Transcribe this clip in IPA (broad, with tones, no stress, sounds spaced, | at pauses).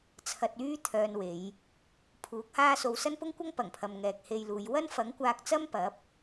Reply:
t͡sʰ ɐ˧ t̚ yː˥ t̪ʰ œː˧ n w e˨˧ j | pʰ uː˨˥ k̚ h aː˥ s o˧ w s ɐ˥ n p ʊ˥ ŋ kʷ ɐ˥ ŋ p ɐ˨˩ ŋ pʰ ɐ˨ m ŋ ɛː˨ k̚ h e˧ j l uː˨˧ j w ɐ˥ n f ɐ˨˥ ŋ kʷ aː˧ k̚ t͡s ɐ˥ m p ɐ˨˥ p̚